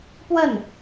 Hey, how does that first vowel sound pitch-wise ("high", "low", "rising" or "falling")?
falling